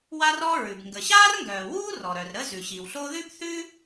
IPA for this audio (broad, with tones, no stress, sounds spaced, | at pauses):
w a˥ r ɔ˥ ɹ ʉ˩ b ŋ ɡ ə˩ ɕ aː˥ r ŋ ɡ œː˩ w uː˥ r ɔ˩ ɾ œ˩ r ɾ ə˥ z ʉ˩ ɕ i˩ w ɬ o˥ ð ʉ˥ p θ ʉ˥